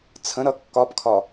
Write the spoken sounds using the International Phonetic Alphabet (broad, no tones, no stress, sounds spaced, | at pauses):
t͡sʰ ə̃ ɾ ʌ kː ɒ p kʰ ɒ